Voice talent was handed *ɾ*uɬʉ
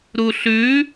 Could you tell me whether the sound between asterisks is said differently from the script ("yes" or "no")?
no